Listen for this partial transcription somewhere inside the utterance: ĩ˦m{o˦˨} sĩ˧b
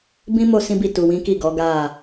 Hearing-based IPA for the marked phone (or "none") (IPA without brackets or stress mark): o˦˨